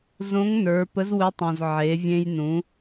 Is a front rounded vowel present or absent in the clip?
absent